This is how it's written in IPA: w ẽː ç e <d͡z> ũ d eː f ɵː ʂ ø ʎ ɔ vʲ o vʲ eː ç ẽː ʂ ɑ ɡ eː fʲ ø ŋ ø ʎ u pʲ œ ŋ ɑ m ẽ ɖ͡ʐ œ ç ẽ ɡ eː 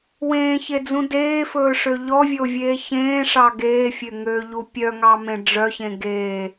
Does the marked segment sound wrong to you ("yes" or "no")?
no